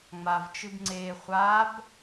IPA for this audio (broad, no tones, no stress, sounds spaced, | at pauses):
ŋ͡m a v t͡ʃ ɨ b ŋ͡ǀ e χʷ a b